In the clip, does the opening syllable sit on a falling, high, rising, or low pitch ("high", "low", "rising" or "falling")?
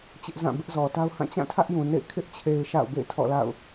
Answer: high